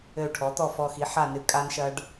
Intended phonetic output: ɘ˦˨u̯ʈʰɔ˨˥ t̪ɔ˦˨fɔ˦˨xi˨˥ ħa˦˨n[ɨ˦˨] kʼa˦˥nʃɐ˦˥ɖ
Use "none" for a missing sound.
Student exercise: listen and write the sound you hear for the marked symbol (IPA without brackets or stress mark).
ɨ˦˥